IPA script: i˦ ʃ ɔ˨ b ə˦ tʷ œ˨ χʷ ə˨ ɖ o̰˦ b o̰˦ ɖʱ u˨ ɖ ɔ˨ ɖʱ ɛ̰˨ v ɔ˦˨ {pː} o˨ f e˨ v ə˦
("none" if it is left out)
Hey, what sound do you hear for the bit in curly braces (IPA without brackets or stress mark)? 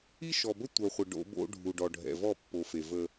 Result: pː